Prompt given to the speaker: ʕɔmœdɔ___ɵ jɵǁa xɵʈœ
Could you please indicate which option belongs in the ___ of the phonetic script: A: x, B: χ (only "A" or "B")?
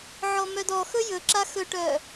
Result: A